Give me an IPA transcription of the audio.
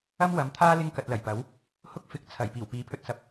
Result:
ɐ˥ m w ɐ˨˥ m t̪ʰ aː˥ l ɪ˥ ŋ k ɐ˨ t̚ l ɐ˨˩ j p ɐ˨˥ w | h ʊ˥ k̚ f ɪ˨˥ k̚ t͡sʰ ɐ˨˩ j p iː˨˩ w p iː˨˥ pʰ ɵ˧ t̚ s ɐ˨˥ p̚

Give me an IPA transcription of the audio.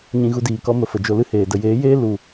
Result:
ɲ ĩ˧ ɣ u˧ d iː˨ k ɔ˧ m ə˨ f ə˨ d͡ʒ o˧ l ɨ˦ h eː˨ d ə˨ j eː˨˦ j eː˦ l u˨

